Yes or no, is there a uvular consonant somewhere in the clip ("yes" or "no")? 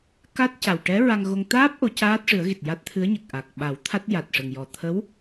no